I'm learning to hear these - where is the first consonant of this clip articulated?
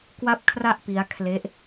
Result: velum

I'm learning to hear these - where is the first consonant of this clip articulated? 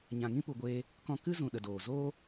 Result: palate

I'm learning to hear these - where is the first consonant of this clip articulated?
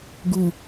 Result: velum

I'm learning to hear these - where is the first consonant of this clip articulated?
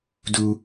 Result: tongue tip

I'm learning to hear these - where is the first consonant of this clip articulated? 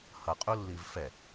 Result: throat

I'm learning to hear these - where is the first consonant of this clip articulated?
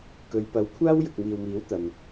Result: velum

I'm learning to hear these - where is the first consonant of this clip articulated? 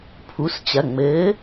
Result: lips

